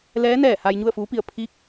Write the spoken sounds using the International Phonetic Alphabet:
l ɛː˧˥ n ɛː˧˩ h aː˧ j ɲ u˥˨ ə̯ f uː˧˥ p i˧˩ ə̯ pʰ i˧˥ k̚

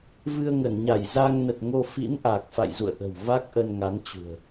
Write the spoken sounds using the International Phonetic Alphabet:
v ɨ˧ ə̯ ŋ ə˧˩ n ɲ a˧˩ j z a˧ ŋ n ə˨˩ t̚ ŋ o˧ f ḭ˧˥ n ʔ a˨˩ k̚ f a̰˧˨ j z ṵ˧˨ ə̯ ʔ ə̤˨˩ w v a˦˥ k̚ ʔ ə˧ n ŋ a˨˦ n t͡ɕ ṳ˨˩ ə̯

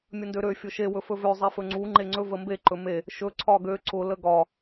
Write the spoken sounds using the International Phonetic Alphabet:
mʲ ə n d ø ɾ ø fʲ ʊ ʃ e w ɵ f ɵ v ø zˤ e f ɵ ŋ͡ǀ u ŋ͡ǃ e ŋ͡ǀ ɵ v ə m b e ǃ ɵ m e | ʃ ɵ ǀʰ ɒ ɡ ø ǀ ʊ l ə ɡ ɒ

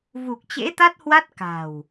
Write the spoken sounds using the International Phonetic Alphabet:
v u˨˩ k̚ t͡ɕ ḛ˧˥ t̪ a˦˥ t̚ h w a˦˥ t̚ k a̤˨˩ w

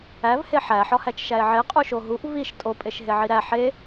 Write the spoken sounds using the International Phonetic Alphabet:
æ v h e ħ æ ħ ɒ h æ t͡ʃ ʃ æ e̯ ʕ e qʼ u ʃ o ɦ u ʔ v i ʃ tʼ o pʼ e ʃ ɦ e ʕ i ɾ æ ħ e

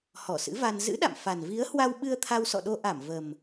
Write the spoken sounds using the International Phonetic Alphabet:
h ɔ˧˩ s ɨ̰˧˥ v a˧ n z ɨ̰˧˥ ɗ a̰˧˨ m f a˨˩ n v i˨˦ ə̯ h w a˧ w ɓ ɨ˧ ə̯ t̪ʰ a˧ w s ɔ̰˧˨ ɗ o˧ ʔ a˧˩ m v ə˨˩ m

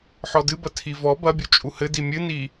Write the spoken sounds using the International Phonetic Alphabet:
ħ ɔ d ɨ b ɐ tʰ i v ɔ b ɐ bʲ u t͡ʃʼ u h ɘ d i mʲ ɨ n i

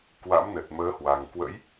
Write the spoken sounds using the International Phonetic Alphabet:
k w a̰˧˥ m n ə˨˩ t̚ m əː˨˦ h w a˨˩ ŋ k w ə̰˧˥ j

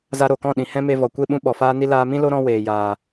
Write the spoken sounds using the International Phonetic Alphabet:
z a˧ ɾ o˨ k ɔ̃˦˨ ɗ ĩ˨ h ɛ̃˦ m e˧ v ɔ˨ kʷ e˦˨ ɓ ũ˦ ɓ ɔ˨ f aː˦ n i˦ l aː˧ m ĩ˦ l o˦ ɾ ɔ̃˦ w eː˨ j aː˨

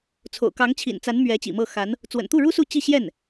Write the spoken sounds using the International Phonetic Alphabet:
t͡sʰ o̰˨˩ ʊ̯ k ɑ˧˥ ŋ t͡ɕʰ ḭ˨˩ n t͡s a˧˥ n m ɥ ɛ˧˥ t͡ɕ ḭ˨˩ m ɤ˥˩ x a˧˥ n | t͡s w ə̰˨˩ n t̪ u˥˩ ɻ u˥ s u˥˧ t͡ɕ i˥˧ ɕ j ɛ˥˩ n

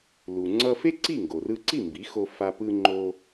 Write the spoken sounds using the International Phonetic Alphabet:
l u˩ ŋ͡ǀ ʌ˧ f e˥ ǀ i˥˩ ŋ ɡ o˩ r ɯ˧ ǀ i˥˩ m b i˩˥ x o˧ f a˧ p ɯ˧ ŋ͡ǃ o˧

